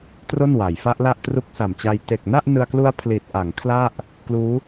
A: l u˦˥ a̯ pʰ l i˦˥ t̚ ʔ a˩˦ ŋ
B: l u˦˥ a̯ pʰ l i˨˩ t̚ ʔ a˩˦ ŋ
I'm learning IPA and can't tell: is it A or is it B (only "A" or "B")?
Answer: B